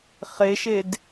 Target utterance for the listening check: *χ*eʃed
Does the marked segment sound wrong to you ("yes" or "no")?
no